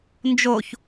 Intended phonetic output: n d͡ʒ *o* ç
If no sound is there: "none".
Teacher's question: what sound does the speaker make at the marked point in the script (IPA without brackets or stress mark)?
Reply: o